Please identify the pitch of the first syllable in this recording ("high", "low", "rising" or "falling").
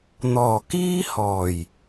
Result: low